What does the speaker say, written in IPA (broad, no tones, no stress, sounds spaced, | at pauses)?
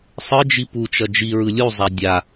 sˤ ɯ d͡ʒ i p u t͡ʃ ʌ d͡ʒ i ɹ ɯ lʲ u zˤ a dʲ a